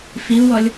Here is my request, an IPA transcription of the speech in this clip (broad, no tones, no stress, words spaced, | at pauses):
fiu̯wɔlʲ